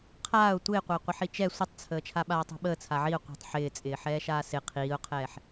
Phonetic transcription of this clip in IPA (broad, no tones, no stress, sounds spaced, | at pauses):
qʰ aː ʊ̯ tʷ ɪː qʷ əː qʷ ɪ ħ i t͡ʃ ɛ sʷ ə tˤ t͡sʰ əː t͡ʃʰ a ɓ aː tˤ i̤ ɓ əː t͡sʰ a ʕ i ʊ̯ qʷ a̤ tˤ ħ ɪː t͡sʼ ɪː ħ ɛː ʃ aː s ɪ qʰ iː ʊ̯ qʰ ɛː ħ